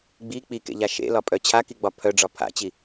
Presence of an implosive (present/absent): absent